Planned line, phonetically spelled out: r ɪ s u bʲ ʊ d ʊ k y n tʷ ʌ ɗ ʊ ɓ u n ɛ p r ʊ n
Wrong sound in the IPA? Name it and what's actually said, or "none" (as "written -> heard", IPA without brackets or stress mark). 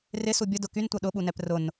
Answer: none